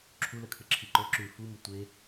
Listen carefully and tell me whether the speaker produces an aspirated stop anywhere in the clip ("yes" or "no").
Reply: yes